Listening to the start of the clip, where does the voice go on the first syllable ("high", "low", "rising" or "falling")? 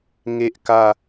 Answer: high